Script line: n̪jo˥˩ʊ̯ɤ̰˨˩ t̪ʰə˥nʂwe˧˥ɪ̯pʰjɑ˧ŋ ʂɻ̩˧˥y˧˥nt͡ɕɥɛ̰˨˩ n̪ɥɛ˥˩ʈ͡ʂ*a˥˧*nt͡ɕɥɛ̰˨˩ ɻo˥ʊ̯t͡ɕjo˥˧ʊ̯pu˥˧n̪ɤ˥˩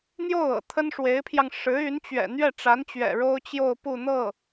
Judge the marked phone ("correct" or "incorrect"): incorrect